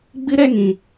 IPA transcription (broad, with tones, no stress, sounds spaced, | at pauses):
ɡ͡b ɨ˦ ɾ ɛ˦ ŋ ĩ˧